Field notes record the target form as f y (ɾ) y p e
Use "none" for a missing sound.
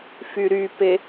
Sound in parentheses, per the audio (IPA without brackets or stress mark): ɾ